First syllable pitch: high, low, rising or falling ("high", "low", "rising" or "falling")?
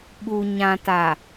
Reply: low